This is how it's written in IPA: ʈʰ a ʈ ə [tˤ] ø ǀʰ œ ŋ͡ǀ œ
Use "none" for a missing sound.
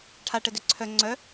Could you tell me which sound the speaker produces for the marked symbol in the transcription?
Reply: d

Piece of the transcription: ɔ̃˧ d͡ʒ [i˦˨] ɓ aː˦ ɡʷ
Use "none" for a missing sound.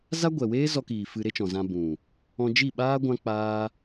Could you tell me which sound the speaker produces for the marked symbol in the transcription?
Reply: i˦˨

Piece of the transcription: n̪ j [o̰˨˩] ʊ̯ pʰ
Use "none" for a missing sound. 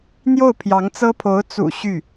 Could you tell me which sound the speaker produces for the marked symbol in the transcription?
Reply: o˥˩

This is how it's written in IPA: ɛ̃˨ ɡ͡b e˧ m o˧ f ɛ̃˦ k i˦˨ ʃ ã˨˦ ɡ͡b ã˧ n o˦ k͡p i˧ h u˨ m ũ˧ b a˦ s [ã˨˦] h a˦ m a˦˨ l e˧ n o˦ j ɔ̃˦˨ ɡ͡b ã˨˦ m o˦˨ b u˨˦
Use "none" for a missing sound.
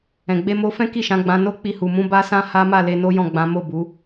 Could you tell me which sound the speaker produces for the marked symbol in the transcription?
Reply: ã˦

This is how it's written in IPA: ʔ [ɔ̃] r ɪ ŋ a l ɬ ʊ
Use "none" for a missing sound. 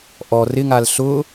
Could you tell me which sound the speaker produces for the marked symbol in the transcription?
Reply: ɔ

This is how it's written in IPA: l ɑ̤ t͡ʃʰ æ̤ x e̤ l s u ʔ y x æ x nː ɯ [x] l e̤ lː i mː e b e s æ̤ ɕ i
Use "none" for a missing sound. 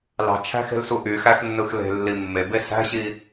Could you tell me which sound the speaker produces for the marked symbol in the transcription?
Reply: x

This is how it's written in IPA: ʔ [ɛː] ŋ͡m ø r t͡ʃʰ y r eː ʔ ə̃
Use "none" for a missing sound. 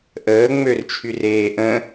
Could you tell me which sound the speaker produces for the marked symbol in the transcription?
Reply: əː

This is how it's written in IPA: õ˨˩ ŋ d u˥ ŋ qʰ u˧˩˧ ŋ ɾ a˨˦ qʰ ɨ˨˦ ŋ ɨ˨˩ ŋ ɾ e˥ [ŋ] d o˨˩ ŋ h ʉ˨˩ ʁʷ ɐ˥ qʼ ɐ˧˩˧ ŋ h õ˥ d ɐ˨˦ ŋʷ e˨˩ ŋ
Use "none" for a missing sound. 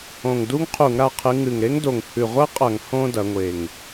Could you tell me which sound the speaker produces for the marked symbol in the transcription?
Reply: ŋ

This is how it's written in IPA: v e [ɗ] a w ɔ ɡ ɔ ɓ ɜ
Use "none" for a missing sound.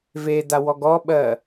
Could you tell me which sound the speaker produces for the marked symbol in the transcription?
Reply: d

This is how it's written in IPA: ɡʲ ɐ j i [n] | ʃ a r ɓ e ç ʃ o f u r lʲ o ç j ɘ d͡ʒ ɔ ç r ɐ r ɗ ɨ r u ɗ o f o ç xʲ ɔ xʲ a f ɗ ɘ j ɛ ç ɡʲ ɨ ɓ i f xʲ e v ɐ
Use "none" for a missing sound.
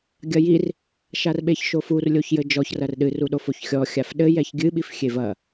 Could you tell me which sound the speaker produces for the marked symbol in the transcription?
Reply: r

